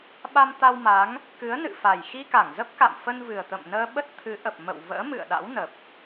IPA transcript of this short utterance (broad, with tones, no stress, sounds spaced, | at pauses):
ɓ a˧ m t̪ a˧ w m a˨˦ ŋ | k ɨ˨˦ ə̯ n ɨ̰˧˨ f a˨˩ j x i˧ k a˧˩ ŋ z ə˦˥ p̚ k a̰˧˨ m f ə˧ n v ɨ˨˩ ə̯ t̪ ə̰˧˨ m n əː˧ ɓ ə˦˥ t̚ t̪ʰ ɨ˨˦ ʔ ə˨˩ p̚ m ə̰˧˨ w v ə̰ː˧˥ m ɨ̰˧˨ ə̯ ɗ a̰˧˥ w n ə˨˩ p̚